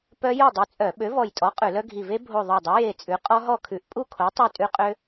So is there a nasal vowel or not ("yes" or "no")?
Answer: no